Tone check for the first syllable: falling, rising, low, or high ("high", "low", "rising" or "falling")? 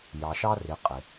low